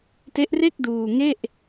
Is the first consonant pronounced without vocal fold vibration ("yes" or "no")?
yes